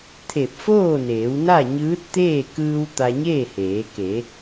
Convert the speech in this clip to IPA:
t̪ʰ e˧˩ p̚ f oː˥˨ n eː˩˧ w n a˥˨ ɲ ɯː˧˥ t̚ t̪ eː˥˨ k ɯː˧ w t̪ a˧ ɲ eː˥˨ h eː˩˧ k e˩˧

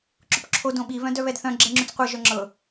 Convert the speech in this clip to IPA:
ǁ ʊ p ǁʰ o d õ ɓ i β œ̃ d œ β ɛ d θ œ̃ ɡ͡ǁ ɛ ŋ͡ǁ ʉ t͡s qʷ ɤ ʒ œ ŋ͡ǁ ɤ

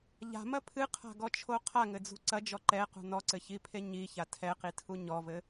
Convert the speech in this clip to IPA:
ʎ a̤ m ɐ pʰ ɨ qʰ a̤ ɡ ɔ t͡ʃʰ o qʰ a ŋ ɘ d͡z ṳ ǀ ɐ d͡ʒ ɔ ǃ ɛ q ṳ n ɔ ǀ ɘ ç i pʰ e ɲ i ç a tʰ ɛ q i tʰ u ɲ ɔ v ɘ

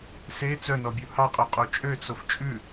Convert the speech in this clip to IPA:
s e t͡s œ n ɔ bʲ u h ɑ qʼ œ qʼ o t͡ʃʼ ø t͡s o f t͡ʃʼ ʉ

